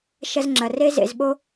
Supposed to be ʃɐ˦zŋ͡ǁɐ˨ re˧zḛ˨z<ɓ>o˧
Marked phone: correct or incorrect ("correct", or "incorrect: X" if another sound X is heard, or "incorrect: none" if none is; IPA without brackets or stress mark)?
correct